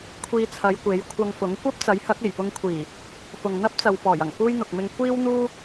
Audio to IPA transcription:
kʷʰ iː˧ t͡sʰ ɐ˨˧ j kʷ e˨˥ j kʷʰ ɐ˧ ŋ f ʊ˨˥ ŋ kʷ ɐ˥ p̚ t͡s ɐ˨˥ j h ɐ˨˥ k̚ e˨˩ j p ʊ˧ ŋ kʷʰ iː˨˩ | f ʊ˨ ŋ n̪ ɐ˥ p̚ t͡s ɐ˨ w p ɔː˨˩ j ɐ˨˩ ŋ f uː˥ j n̪ ʊ˨ k̚ m ɪ˧ ŋ kʷ iː˥ w n̪ uː˥

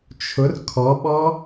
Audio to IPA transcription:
t͡ʃʰ ʊ r kʰ ɔ ɓ ɔ

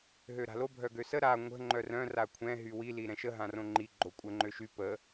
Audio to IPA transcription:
ɦ ø ɾ a̤ l o bʱ œ ɡ ø s ə ɾ a ŋʷ ə̤ ŋ͡ǃ œ r œ̃ r a kʷʰ ɛ̃ ɦ y w i l i ɾ ɛ̃ ʃ ə ɦ ã r õ ŋ͡ǃ i ɡ͡ǃ o kʷʼ ə ŋ͡ǃ ø ʃ y p ə

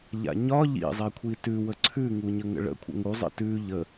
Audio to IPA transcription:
ʎ a̰ ɲ ɒ ʎ ḭ zˤ i kʷʰ i t ʉ w ə ǀʰ ʉ ŋ u ɲ ə ŋ ə̰ ɭ ə̰ kʷʰ ə̰ ŋ u zˤ ə̰ t ʉ ʎ ə

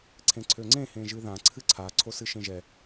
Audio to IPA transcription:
ǀʰ ẽ ǀʰ ø ŋ͡ǀ ẽ h ẽ ʒ ɨ ð ã ǀʰ ɨ ǀʰ a ǀʰ o s ɨ ʃ ẽ ʒ ɛ

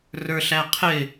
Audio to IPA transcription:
r ə˞ ɬ æ qʰ ɪ

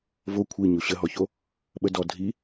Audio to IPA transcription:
v o kʷʰ i ɲ o ɕ ə ɦ ɔ ç o | ɓ ə d ɔ dʱ i

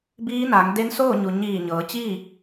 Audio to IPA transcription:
b iː˧˥ n a˩˧ ŋ d e˧˥ n s oː˥˨ ɲ u˩ ɲ iː˧˩ ɲ ɤː˩˧ t͡ɕ iː˥˨

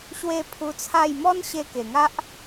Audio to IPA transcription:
ɕ w e˥˧ pʰ u˧ t͡sʰ a˥˧ j m ɔ˦ n ɕ e˧ k e˨˩ ŋ a˦ ʔ

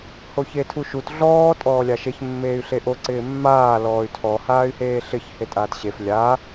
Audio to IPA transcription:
h o ç e tʰ u ʃ u t ɮ ɔː tʼ ɔː lʲ a ʃ e ç mː eː y̯ ɬ e ʔ o ǀ ɪː mː aː l ɔː y̯ tʰ ɔ h aː y̯ h eː ɬ ɪ ç h e tʼ aː t ɕ e f lʲ a

